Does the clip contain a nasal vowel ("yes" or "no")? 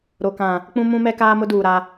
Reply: yes